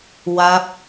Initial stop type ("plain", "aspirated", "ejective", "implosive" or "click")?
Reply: plain